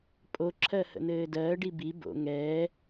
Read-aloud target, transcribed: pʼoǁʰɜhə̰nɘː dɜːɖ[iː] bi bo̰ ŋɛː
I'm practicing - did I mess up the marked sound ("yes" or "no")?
yes